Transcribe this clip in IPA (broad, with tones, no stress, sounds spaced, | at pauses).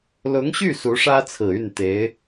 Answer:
l ʊ˧˥ ŋ ɕ y˥˩ s u˧˥ ʂ ä˥ t͡sʰ ɹ̩˨˩ y˥˩ n t̪ e˧˥ ɪ̯